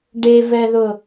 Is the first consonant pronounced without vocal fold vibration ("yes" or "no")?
no